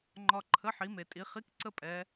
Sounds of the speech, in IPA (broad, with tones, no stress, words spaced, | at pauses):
ŋ͡ǃɒ˨ ǃʰə˧˥˧ħi˨˦ me˨tʼi˨˦ χi˧˥˧k ǀə˥pʼɛ˨˦